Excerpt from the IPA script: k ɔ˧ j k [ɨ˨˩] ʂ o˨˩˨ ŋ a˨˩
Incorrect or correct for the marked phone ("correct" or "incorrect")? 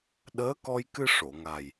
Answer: incorrect